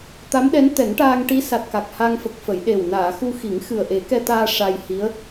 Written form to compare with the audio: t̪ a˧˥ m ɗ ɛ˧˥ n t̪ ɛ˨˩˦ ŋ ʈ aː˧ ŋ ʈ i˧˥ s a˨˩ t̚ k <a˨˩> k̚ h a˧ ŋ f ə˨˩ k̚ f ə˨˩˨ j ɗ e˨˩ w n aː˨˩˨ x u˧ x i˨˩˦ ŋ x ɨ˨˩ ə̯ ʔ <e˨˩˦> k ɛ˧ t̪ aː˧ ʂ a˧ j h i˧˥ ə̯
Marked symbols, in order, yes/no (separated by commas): yes, yes